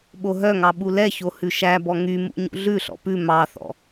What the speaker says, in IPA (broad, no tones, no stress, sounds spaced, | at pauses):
ɓ o ɦ œ ŋ ɑ ɓ u l ɛ ç o h ʉ ʃ æ b ɔ ŋ y m ṵ ɲ ṵ ɮ ʉ ɬ ɔ̰ p ʉ m ɑ θ ɔ̰